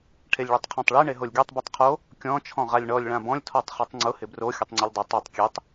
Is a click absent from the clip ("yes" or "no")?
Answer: no